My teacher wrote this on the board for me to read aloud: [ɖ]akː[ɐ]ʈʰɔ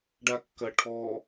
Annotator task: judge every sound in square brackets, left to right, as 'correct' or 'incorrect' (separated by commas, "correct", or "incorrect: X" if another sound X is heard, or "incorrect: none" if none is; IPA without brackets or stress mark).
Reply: correct, correct